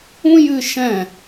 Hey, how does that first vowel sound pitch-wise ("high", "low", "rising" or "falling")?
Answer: high